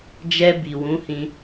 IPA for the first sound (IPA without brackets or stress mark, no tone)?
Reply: d͡ʒ